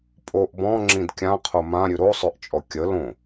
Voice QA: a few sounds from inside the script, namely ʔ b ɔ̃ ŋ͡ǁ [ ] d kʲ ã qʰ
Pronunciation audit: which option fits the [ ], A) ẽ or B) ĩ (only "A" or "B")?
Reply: B